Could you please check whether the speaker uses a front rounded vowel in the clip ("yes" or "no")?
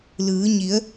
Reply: no